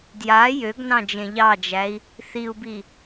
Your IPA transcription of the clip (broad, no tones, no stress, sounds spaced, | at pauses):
d j a j ø ɡ n ɑ̃ d͡ʒ ẽ ʎ ɑ d͡ʒ æ i̯ | θ i u̯ b i